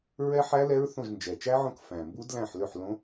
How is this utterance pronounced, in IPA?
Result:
ɹ ɛ˦˥ ħ æ˦˥ l ɛ˦˥ ɹ θ õ˥˩ ʒ n d͡ʒ ɛ˨˩ t͡ʃ æ˦˥ ʕ õ˥˩ k f æ̃˨˩ m b u˦˥ d l æ̃˥˩ ħ l ø˥˩ ħ l õ˦˥

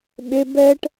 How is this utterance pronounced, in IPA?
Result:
ɓ e b ɛ ʈ

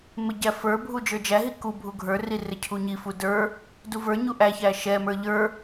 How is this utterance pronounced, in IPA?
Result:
m ɪ ɟ æ f ə˞ bʱ u d͡ʒ ə˞ d͡ʒ æ ɦ i k u bʱ u ɡʱ ə˞ r i r ɪ cʰ u ɲ i f u d ə˞ | d u v ə˞ ɲ u ʔ æ ç æ ʃ ɛ m ə˞ ʎ ə˞

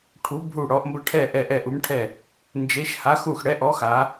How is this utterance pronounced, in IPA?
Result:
ʈʰ u˨˦ bʱ u˧˩ ɽ ɔ˨˦ ʔ m b ə˧˩ ʈʰ ɛ˧˩ ʔ ɛ˧˩ ʔ ɛ˧˩ ʔ u˨˦ m ʈʰ ɛ˧˩ | n d͡ʒ e˨˦ ʃ h a˨˦ x u˧˩ x ɽ ɛ˨˦ ʔ ɔ˨˦ x a˨˦

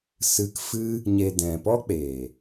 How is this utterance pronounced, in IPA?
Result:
s ɨ˧ k f ɨ˦ | ɲ e˨ d ɛ̃˨ p ɔ˦ k͡p eː˨

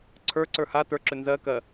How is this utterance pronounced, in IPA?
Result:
ǀʰ ə˞ ǀ ə˞ h a t ə˞ ǁ ʏ n z ɜ k ɜ

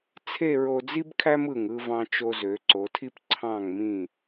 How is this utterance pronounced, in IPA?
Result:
t͡sʰ e˥˧ ɹ o˧ d͡z i˥ b kʰ æ˥ m ɯ˧˩ ŋ ɯ˥˧ v ɑ̃˧ t͡ʃ o˧ z ø˩˧ ǀ o˩˧ tʰ i˥ p ǀʰ ɑ̃˧˩ ŋ m ĩ˧˩

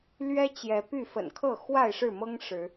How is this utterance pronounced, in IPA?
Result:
l ɥ ɛ˦ t͡ɕ j ɛ˨˦ p y˥˨ f ə̰˨˩ n kʰ ɤ˥˨ x w a˥˨ ɪ̯ ʂ ɻ̩˥˨ m ɤ˦ ŋ ʂ ɻ̩˨˦

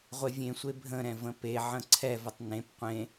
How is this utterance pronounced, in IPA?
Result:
ʁʷ e vʲ ẽ sʷ e bʱ ə̃ ɾ ɛ̃ v ə̃ p e ʕ ə̃ ǀʰ ɛ v ə tˤ n ẽ p qʷ ẽ

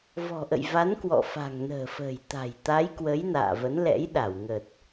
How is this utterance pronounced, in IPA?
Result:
v ɔ̤˨˩ ʔ ə̰˧˨ j v a˨˦ n k w ɔ̰˧˨ f a̤˨˩ ŋ n ə̤ː˨˩ f ə̤ː˨˩ j t̪ a̤˨˩ j t̪ a˨˦ j k w ə˨˦ j n a̰ː˧˨ v ə˨˦ n l ɛ̰˧˥ j ɗ a˧˩ w ŋ ə˨˩ t̚

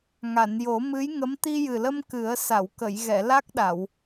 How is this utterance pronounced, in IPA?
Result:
ŋ a˨˩˨ n j o˨˩˦ m ɨ˧˥ j ŋ ə˧˥ m t̪ i˧ j ɨ˨˩ l ə˧ m k ɨ˨˩˦ ə̯ s a˨˩˨ w k ə˨˩˨ j ɣ ɛ˨˩˨ l a˦˥ k̚ ɗ a˨˩˨ w

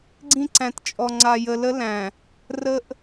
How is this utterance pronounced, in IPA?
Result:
ɡ͡ǀ ĩ˦ ǀ æ̃˨ t t͡ʃʼ ɔ˨ ŋ͡ǀ a˨ j ə˨ l ə˦ l æ̃˨ | r ə˦ ʔ

